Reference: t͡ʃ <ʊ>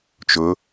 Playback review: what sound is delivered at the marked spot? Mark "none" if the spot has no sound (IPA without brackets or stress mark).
ʊ